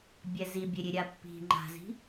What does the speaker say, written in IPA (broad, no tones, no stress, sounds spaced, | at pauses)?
bʲ ɛ z i bʲ e ɾʲ e ɾʲ a pː i̤ ŋ͡ǃ a̤ z i̤